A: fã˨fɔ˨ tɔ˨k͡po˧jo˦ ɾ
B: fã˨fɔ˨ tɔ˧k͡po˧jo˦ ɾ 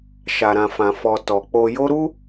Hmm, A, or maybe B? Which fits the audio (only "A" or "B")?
A